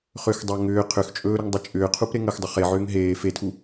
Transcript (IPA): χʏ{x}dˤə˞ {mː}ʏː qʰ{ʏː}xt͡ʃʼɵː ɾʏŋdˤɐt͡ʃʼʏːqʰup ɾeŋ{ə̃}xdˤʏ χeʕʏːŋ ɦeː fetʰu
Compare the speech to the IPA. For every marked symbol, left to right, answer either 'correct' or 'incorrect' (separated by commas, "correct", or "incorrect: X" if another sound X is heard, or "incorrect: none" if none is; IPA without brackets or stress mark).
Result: correct, incorrect: ŋ, incorrect: ʏ, incorrect: ə